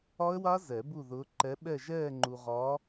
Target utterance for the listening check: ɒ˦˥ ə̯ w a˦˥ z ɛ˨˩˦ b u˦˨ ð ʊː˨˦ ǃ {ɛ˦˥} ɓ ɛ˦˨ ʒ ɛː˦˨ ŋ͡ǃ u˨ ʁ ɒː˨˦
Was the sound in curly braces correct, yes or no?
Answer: no